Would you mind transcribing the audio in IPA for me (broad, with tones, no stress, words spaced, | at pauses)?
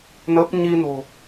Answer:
nə˦˥p̚ ɲi˧no̤˨˩